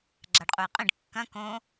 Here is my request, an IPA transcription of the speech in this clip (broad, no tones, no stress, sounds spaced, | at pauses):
ɡ͡ǁ a ɖ qʼ u j qʼ ĩ ɖ kː ɐ̃ k õ